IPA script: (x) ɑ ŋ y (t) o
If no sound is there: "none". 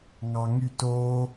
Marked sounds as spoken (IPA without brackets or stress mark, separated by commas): ŋ, t